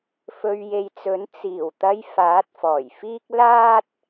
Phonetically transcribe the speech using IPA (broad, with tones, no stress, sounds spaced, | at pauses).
f ɵ˨ ɥ j e˨ j t͡s ɵ˨˥ n t͡s iː˨˩ w t̪ ɐ˧ j f aː˨˥ t̚ f ɔː˨˩ j f iː˥ k̚ l aː˥ t̚